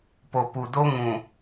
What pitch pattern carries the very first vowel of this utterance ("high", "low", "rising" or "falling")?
low